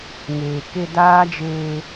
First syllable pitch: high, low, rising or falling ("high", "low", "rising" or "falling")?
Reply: low